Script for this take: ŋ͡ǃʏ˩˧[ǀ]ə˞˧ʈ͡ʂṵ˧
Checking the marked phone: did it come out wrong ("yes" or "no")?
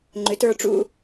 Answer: yes